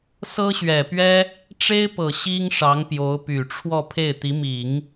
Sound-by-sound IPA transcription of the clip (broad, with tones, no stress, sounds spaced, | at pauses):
s ɤ˥ ɕ ɥ ɛ˨˩ p ɥ ɛ˥ | ʈ͡ʂ e˥ ɪ̯ p ɤ˨˩ ɕ i˥ ŋ ʂ ɑ˧˥ ŋ p j o˧˥ ʊ̯ p y˨˩ ʈ͡ʂʰ w ɔ˥˧ pʰ e˥˩ ɪ̯ t̪ i˧˥ m i˨˩˦ ŋ